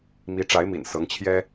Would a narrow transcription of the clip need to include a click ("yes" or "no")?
no